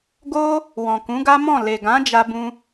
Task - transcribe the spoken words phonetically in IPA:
ɡ o˦ | w ɔ̃˨ k ũ˨˦ ɡ a˦ m ɔ̃˦˨ l e˨ ɡ ã˨˦ d͡ʒ a˧ b ũ˧

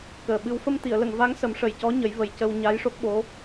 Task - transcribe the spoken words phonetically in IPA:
k əː˨˩ ɓ ɨ˧˥ w f ə˧ m t̪ i˨˩˨ ə̯ l ə˨˩˨ ŋ v a˧˥ ŋ s ə˨˩˦ m ʂ ə˨˩ j c ɔ˧˥ ɲ ə˨˩˦ j v ə˨˩ j c ə˧ w ɲ a˧˥ j ʂ o˦˥ k̚ ɓ o˧˥

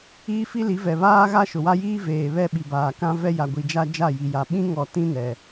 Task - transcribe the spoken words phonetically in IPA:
iː˦ f i˦ l i˨˦ v ɛ˨ β aː˦ ɣ a˦ ʃ ʊ˨ w a˦ j iː˦ v eː˨ β ɛ˦ ɓ i˨ b aː˨ k ã˦ v ɛ˦ j a˨ ɡʷ i˨ d͡ʒ a˦ d͡ʒ a˦˨ j i˨ j a˨ ɓ ĩ˦ ŋ ɔ˨ t ĩ˦ n ɛ˨

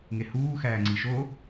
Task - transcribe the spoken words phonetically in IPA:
ŋ e h uː x æː ŋ͡ǀ i ʃ o

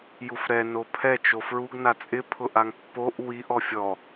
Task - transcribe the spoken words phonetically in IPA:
j u f ɾ ɛ n o pʰ ɛ t͡ʃ o f ɹ u ɡ n a t͡sʼ ɪ pʰ ʊ ʔ a ŋ pː o ʔ w i ʔ ɔ fʲ ɔ

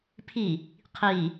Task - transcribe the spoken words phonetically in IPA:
pʰ i | qʰ i

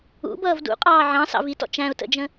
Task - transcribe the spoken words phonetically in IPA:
ṵ b ʌː v d ṵ qʼ ɑː ʕ ɑ̃ s ɑ̰ v i t ɔ̰ t͡ʃ æ̃ ʊ̯ t ə̰ d͡ʒ ə̃

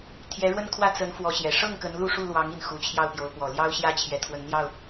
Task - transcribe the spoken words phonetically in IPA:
t̪ʰ j ɛ˧˥ ɻ w ə˥ n kʰ w ä˥˩ t͡s ə˧˥ n f w ɔ˧˥ ɕ j ɛ˨˩ ʂ ɤ˥˩ ŋ k ə˧˥ n l u˥˧ ʂ u˥˩ l w ɑ˧˥ ŋ i˥˩ n x u˨˩ t͡ɕʰ j ɑ˥˩ ʊ̯ p j o˧˥ ʊ̯ p w ɔ˨˩ l j ɑ˥ ʊ̯ ɕ j ä˥ t͡ɕʰ j ɛ˧˥ t̪ʰ w ə˧˥ n n̪ j ɑ˥˩ ʊ̯

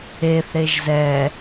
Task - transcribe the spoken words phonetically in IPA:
e θ ɾ e ʒ z ɛ

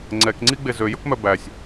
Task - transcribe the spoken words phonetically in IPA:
ŋ͡ǀ ɛ k ŋ͡ǀ i ɡ͡b e z ø j ɵ k m œ b æ sʲ

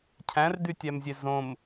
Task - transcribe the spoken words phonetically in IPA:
cʰ æ̃ r d y tʲ æ m zʲ e z õ m

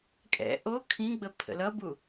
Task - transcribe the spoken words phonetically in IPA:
kʼ ɛ̰ ʔ o kʰ ĩ ɡ͡b ə pʰ ə̰ l ʌ b u

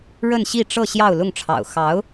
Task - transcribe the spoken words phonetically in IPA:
ɻ ə˥˧ n ɕ i˥˧ ʈ͡ʂ ɤ˥˧ ɕ j ɑ˥˧ ʊ̯ l ʊ˥˩ ŋ ʈ͡ʂʰ ɑ̰˨˩ ʊ̯ x ɑ˧˥ ʊ̯

